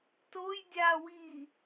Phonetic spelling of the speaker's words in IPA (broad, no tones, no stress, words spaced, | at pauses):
toj dʲawiː